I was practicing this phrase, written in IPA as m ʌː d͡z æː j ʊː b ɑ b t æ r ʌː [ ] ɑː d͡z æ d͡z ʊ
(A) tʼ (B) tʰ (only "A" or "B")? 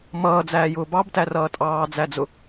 A